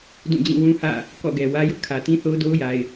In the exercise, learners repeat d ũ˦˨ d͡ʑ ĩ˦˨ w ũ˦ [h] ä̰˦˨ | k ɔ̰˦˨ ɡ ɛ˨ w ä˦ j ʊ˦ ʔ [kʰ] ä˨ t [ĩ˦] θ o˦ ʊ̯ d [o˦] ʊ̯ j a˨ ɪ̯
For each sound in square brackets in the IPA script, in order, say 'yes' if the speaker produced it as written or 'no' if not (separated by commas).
yes, yes, yes, yes